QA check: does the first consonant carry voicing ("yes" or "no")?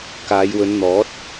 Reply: no